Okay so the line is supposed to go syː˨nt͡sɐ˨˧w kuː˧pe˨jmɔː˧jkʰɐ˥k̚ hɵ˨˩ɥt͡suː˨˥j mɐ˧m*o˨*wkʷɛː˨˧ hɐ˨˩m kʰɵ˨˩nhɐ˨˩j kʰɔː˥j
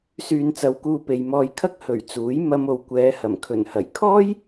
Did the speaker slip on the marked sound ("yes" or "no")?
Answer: no